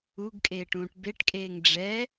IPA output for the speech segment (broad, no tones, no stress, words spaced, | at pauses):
uɡkʼeːʈ ũːʈbeʈkʼeːŋ ɖ͡ʐɛ